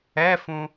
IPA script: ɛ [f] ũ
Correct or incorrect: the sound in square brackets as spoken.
correct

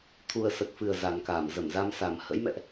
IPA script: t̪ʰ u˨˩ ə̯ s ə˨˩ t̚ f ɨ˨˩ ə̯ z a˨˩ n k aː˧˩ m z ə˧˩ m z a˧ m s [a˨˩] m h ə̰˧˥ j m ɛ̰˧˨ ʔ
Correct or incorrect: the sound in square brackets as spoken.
correct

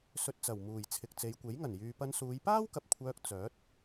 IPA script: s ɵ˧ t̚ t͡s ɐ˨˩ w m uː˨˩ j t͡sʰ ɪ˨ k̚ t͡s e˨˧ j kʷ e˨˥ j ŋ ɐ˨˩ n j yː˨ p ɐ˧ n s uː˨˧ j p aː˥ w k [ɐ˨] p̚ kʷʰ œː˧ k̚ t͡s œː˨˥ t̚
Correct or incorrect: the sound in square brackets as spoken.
correct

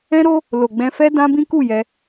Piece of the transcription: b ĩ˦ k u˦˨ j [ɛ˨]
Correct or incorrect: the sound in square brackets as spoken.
incorrect: ɛ˧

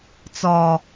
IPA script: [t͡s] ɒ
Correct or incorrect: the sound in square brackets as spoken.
correct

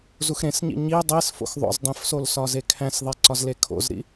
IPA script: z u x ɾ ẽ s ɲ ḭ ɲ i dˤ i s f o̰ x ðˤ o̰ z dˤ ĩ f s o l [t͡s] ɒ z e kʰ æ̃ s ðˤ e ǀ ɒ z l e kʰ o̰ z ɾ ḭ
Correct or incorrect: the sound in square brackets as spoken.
incorrect: s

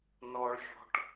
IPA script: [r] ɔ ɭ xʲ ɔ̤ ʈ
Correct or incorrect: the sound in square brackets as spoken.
incorrect: n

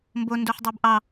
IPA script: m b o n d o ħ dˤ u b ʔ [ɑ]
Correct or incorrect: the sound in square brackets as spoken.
correct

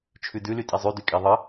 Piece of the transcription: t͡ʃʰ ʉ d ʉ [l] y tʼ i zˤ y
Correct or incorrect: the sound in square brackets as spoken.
correct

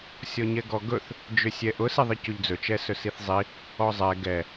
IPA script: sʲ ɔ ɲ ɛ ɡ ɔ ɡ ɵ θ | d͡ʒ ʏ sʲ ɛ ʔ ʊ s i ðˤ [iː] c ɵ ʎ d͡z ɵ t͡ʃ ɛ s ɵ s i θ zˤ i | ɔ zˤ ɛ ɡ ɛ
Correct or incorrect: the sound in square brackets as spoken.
incorrect: i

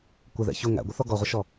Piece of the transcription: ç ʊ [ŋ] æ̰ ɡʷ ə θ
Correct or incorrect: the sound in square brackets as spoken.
correct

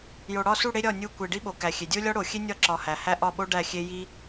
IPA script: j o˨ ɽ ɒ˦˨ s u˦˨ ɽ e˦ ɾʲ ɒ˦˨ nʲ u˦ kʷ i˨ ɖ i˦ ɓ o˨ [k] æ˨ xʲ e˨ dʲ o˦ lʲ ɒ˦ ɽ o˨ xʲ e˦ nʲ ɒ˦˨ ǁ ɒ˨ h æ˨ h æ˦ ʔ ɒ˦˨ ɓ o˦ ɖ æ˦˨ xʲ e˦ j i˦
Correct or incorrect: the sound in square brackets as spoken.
correct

